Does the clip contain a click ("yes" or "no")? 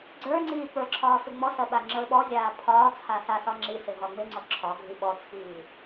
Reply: yes